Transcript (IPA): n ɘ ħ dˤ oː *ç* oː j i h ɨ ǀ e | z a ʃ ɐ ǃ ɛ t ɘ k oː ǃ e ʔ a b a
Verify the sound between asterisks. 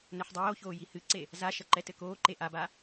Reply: correct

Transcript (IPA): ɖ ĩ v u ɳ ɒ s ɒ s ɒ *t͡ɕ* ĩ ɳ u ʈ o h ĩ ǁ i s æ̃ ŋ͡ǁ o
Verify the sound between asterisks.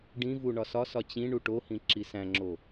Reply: correct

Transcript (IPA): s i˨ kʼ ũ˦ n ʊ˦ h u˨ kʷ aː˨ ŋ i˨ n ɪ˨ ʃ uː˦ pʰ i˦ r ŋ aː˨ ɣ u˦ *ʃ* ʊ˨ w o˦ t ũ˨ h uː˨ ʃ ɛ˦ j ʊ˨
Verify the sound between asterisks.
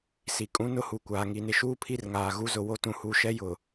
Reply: incorrect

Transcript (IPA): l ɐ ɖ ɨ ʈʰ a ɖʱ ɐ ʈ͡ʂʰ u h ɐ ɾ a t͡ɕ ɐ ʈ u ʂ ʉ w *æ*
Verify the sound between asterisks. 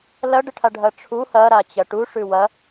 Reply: incorrect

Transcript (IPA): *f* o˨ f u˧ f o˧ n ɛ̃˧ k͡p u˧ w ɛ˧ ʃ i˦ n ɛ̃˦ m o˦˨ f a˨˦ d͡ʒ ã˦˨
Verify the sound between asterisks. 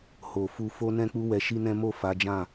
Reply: incorrect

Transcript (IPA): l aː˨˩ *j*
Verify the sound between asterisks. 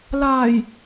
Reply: correct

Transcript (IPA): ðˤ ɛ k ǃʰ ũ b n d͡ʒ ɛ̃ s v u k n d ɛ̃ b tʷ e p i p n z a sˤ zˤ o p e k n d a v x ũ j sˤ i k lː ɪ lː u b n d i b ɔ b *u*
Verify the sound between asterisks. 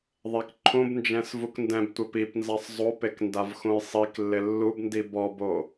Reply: incorrect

